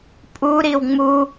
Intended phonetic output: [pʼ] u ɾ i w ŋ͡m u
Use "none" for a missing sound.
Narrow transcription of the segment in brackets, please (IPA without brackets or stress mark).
pʼ